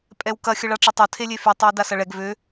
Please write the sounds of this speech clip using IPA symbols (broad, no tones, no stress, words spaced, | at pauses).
pʼɛwkɐ xʲəɭaʈ͡ʂʊtˤo tʰelʲefy tˤewdasɐɭɛɡ vø